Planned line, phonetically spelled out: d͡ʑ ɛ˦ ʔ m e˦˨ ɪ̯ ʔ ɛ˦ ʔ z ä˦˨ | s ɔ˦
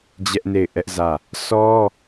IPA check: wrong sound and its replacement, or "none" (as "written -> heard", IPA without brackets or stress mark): m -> n